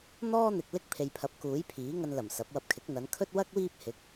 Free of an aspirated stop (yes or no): no